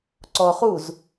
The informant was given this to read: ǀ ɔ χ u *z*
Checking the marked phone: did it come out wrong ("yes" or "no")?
no